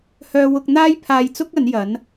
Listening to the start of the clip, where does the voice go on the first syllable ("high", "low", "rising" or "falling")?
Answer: high